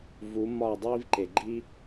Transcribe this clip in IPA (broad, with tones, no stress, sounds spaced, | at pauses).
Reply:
v u˨˦ m ɒ˦˨ dˤ iː˦ v ǃ e˨ ɡ͡ǃ i˦